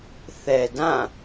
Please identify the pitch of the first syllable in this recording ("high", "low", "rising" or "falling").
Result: low